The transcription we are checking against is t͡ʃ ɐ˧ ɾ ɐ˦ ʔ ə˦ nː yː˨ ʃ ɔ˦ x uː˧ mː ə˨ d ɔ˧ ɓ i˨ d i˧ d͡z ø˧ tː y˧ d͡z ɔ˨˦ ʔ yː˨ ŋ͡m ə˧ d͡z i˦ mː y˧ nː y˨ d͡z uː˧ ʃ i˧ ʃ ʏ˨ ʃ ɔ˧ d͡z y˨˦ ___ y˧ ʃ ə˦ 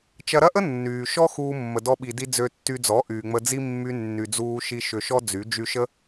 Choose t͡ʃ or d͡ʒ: d͡ʒ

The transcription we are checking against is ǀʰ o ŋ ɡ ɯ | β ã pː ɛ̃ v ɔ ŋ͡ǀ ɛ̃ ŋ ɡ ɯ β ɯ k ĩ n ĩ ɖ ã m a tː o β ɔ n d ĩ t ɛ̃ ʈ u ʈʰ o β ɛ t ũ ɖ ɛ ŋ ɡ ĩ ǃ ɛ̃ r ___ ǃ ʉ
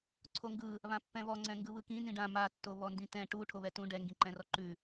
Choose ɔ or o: ɔ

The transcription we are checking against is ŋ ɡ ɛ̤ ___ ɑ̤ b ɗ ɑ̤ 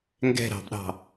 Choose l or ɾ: ɾ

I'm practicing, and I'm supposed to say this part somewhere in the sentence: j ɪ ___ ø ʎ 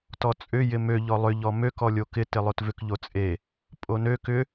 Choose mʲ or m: m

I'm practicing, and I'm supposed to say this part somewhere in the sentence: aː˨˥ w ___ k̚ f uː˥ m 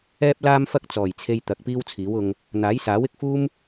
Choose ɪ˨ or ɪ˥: ɪ˨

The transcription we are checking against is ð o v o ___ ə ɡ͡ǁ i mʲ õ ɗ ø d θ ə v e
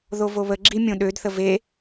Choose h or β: β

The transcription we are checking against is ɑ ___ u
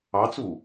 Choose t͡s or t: t͡s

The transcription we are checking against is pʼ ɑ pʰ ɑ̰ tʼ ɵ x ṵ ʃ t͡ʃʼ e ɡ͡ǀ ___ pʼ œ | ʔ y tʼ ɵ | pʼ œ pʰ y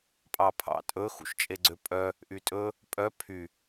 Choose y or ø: ø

